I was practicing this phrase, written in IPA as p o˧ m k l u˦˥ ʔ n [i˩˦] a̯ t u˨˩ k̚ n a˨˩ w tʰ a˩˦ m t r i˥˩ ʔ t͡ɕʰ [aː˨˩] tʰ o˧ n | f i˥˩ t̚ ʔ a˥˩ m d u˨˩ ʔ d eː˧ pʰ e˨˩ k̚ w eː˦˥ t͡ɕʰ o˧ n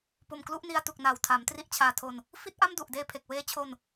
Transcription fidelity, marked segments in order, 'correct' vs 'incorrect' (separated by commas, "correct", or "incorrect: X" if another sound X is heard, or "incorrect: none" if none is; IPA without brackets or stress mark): incorrect: i˧, incorrect: aː˧